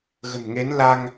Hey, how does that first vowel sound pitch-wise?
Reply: low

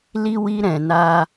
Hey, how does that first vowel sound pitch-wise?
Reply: high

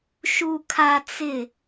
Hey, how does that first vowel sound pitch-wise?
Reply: high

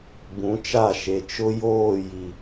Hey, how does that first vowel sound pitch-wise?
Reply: rising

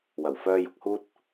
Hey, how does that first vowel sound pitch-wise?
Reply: low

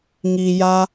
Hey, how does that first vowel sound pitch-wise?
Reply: low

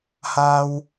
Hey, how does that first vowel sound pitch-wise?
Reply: high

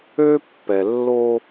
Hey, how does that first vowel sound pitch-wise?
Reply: high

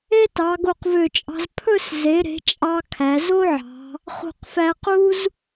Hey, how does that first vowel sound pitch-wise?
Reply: high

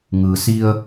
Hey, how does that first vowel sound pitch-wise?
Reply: low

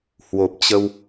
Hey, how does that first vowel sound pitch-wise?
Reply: low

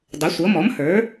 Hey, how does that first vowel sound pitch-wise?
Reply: rising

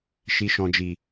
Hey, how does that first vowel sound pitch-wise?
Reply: low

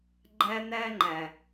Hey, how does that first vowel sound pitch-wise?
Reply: high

